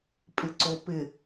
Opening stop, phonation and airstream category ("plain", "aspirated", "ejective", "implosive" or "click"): ejective